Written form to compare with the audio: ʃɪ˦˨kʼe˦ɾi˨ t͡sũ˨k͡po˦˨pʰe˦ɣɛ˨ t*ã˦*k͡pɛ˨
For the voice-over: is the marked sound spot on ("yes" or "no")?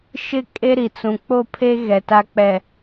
no